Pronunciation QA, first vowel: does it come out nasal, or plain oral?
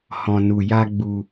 nasal